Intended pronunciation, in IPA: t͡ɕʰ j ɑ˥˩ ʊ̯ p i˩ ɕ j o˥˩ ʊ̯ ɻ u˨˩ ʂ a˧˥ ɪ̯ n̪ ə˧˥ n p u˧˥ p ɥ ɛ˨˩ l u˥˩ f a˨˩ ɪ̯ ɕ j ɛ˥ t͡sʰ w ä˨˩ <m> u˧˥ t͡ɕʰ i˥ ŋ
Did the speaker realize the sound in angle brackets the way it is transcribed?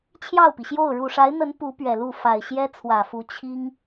no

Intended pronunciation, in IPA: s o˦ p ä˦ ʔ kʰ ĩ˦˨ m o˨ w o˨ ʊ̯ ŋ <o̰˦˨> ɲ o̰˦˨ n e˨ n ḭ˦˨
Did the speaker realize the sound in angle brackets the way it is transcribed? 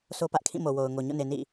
no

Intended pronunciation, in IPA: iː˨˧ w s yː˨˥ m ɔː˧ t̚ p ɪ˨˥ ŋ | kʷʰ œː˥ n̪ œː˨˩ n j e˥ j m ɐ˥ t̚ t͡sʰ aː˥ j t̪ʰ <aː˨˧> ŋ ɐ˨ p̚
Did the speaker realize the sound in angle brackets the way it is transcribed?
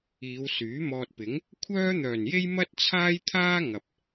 no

